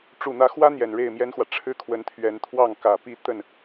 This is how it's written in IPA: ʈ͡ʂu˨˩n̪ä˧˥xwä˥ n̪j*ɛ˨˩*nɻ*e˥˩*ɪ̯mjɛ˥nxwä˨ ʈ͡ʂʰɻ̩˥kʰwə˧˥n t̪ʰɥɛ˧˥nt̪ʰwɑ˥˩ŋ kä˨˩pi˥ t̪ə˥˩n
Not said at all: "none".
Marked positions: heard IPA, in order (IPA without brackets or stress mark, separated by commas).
ɛ˨˩, e˥˩